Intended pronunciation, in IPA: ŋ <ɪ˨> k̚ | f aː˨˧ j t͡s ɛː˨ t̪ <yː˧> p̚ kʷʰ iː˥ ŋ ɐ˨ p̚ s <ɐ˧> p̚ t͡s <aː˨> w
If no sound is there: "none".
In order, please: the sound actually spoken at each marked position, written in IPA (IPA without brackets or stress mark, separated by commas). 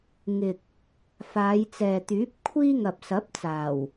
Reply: ɪ˨, yː˨˥, ɐ˨˥, aː˨˩